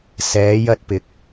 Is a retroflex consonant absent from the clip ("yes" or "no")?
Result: yes